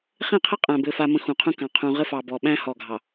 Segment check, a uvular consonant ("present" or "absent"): present